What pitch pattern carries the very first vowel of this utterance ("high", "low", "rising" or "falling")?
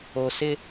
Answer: low